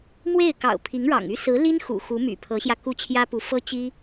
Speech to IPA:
mwe˥˩ɪ̯kɑ̰˨˩ʊ̯ pʰi˧˥ŋɻɑ̰˨˩ŋy˥ sɹ̩˧˥li˥n xṵ˨˩xu˧˥ my̰˨˩pʰɤ˧˥ɕjä˧ ku˥˩t͡ɕʰjä˥pu˧˥ fɤ˥t͡ɕi˥

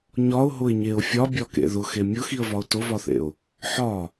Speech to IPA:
ɲɒʊ̯ɦʊɪ̯ɲeʊ̯ fʲɒbʲɒkḛ ðʊxe mʲʊxiə̯vɒʊ̯ tʊvɒθḛʊ̯ | ħɒ

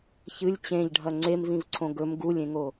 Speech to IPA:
çɨlʲ t͡ɕẽʎɖʱɐ ŋ͡ǀemvĩvǀʰõ ɡɵm ɡulʲẽŋo

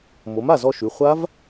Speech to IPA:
mo˩˥ma˧˩zɔ˧ʃʉ˩˧˩ χʷa˦˥v

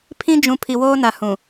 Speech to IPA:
pʰĩ˦ d͡ʒũ˨ pʰi˨woː˦na˨ hũ˨

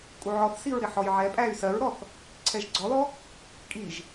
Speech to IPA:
kʼuʕɔθsiɹ ɾɪħɔjʕɛpʼæy̯ sɜɹɾɔθ | ǀʰɛʒɡ͡ǀɔlɔ | kʼiʒ

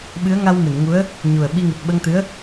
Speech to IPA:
ɓɨ˧˥ə̯ŋa˧w mɨ˨˩˨nŋu˧˥ə̯ | ɲu˨˩ə̯ɓi˧ ŋɨ˨˩t̚ɓə˧ŋt̪ɨ˧˥ə̯

